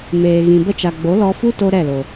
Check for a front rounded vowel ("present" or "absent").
absent